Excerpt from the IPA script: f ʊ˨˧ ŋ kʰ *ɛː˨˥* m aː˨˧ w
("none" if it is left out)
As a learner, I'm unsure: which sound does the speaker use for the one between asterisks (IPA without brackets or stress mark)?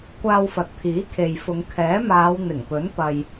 ɛː˨˥